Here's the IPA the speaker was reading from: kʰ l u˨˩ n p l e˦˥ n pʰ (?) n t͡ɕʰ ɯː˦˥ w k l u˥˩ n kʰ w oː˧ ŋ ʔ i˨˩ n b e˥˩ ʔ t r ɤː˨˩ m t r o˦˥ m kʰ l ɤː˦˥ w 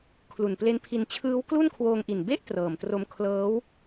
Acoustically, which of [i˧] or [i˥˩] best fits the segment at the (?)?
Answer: i˧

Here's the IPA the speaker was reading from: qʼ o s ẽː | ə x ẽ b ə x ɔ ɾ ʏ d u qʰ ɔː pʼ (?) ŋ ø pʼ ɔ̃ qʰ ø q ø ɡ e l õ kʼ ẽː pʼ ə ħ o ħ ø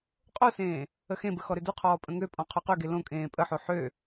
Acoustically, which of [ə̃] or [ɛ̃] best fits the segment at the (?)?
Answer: ə̃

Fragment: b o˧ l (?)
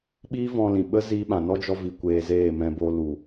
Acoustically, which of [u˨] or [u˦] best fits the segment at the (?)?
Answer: u˨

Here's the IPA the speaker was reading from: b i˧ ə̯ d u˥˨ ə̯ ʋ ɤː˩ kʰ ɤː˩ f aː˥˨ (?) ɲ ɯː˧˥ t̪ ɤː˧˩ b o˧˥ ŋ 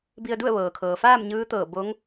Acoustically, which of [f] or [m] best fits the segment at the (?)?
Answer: m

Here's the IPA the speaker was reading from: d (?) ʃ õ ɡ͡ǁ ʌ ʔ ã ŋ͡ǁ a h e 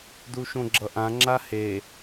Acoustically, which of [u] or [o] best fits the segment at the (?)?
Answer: u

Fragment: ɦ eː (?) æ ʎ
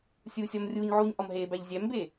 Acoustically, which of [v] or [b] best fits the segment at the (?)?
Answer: b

